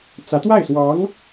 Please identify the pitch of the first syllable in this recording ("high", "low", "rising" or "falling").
rising